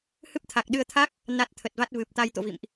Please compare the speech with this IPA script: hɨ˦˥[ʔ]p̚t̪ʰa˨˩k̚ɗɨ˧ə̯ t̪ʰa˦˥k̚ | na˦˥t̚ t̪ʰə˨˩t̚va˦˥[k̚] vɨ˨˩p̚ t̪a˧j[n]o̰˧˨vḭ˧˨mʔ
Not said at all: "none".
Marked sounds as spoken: none, t̚, t̪

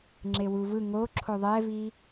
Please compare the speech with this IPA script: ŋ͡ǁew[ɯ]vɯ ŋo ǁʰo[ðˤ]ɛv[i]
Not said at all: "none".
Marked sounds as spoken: u, ðˤ, i

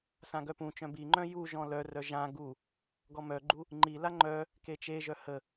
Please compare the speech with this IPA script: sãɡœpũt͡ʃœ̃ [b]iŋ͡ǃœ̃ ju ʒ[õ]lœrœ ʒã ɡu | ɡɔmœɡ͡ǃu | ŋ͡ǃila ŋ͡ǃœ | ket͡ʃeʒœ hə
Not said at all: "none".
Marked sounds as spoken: b, ɔ̃

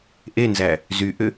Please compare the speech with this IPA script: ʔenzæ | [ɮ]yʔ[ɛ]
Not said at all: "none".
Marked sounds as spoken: z, ʏ

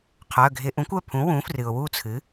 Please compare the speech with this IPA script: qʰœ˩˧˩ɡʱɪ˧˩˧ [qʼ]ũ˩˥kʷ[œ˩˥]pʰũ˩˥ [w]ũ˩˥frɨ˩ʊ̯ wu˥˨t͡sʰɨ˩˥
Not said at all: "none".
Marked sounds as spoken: ʔ, œ˩˧˩, w

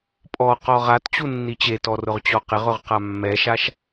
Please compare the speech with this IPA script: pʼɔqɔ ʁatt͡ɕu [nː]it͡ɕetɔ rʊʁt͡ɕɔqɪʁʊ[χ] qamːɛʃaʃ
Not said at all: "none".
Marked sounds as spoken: nː, ʁ

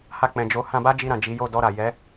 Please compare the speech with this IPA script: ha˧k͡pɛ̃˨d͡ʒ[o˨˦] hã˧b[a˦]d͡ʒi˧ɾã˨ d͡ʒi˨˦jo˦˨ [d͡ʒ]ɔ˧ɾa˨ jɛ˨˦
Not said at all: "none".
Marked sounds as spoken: o˨˦, a˦, d

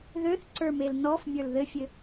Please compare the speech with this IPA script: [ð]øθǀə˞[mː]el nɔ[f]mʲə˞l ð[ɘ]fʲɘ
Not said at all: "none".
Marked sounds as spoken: ð, m, f, ɘ

